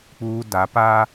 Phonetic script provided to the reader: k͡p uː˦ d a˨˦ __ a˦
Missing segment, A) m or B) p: B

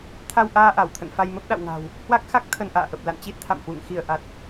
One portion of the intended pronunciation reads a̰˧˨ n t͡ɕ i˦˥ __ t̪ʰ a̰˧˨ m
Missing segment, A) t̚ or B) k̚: A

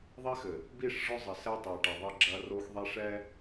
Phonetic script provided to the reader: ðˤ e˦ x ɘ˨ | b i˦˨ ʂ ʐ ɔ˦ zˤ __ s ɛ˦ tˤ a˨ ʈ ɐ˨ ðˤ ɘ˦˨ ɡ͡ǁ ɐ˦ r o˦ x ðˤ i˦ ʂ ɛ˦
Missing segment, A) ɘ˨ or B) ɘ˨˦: A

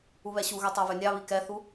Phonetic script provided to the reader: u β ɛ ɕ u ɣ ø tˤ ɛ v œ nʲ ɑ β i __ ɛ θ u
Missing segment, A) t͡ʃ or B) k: B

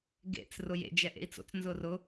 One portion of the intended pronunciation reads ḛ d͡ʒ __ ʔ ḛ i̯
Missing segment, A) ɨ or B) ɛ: B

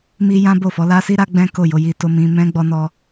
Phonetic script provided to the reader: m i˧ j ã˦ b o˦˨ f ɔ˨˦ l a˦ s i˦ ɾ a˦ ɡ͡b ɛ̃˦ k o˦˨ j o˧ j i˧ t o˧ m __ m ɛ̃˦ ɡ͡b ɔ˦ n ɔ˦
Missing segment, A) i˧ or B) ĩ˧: B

